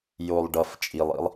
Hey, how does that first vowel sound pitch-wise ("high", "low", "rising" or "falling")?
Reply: low